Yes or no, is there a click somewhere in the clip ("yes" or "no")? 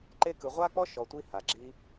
yes